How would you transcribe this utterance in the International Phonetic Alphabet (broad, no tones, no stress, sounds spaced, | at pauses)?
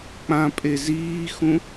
k͡p ã pʼ e z iː x ũ